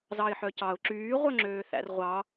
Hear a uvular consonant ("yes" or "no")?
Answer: yes